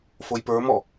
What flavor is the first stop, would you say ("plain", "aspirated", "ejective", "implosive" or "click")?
plain